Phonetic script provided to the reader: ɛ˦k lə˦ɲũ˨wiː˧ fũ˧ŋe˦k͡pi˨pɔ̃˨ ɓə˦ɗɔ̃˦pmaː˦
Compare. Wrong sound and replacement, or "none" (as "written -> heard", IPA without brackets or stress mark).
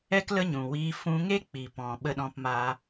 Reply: none